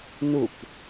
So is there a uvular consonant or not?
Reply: no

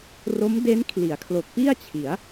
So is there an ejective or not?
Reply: no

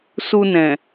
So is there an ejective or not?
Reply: no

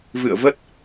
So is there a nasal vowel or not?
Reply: no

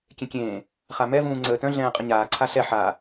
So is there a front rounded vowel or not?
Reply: yes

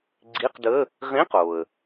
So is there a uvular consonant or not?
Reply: yes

